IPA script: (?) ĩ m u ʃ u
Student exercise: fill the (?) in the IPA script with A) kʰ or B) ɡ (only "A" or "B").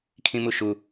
A